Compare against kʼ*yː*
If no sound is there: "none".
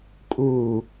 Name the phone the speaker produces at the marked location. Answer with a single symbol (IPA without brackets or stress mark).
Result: uː